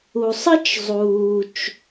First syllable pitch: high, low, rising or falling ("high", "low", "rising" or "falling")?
low